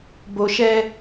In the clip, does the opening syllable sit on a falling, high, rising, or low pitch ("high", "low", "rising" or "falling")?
low